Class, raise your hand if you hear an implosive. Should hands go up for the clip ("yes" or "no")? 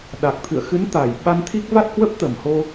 yes